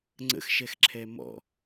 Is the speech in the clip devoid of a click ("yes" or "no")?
no